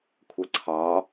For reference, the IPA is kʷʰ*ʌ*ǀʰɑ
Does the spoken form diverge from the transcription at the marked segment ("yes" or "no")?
no